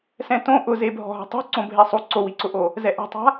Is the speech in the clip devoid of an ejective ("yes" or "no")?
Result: yes